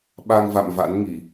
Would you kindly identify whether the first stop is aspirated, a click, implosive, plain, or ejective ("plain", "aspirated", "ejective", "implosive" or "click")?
implosive